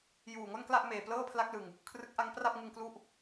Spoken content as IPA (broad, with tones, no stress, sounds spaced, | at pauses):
j uː˨˩ ŋ o˥˩ n k l a˥˩ ʔ m eː˨˩ p l ɤː˥˩ pʰ l a˦˥ k̚ l ɯ˨˩ ŋ | kʰ r ɯ˦˥ k̚ ʔ a˦˥ ŋ p r a˥˩ p̚ ŋ ɯ˧ ŋ k l u˦˥ ʔ